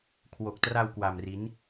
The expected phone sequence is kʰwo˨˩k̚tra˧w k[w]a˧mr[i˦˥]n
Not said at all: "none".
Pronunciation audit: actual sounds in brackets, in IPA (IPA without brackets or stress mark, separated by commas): w, i˦˥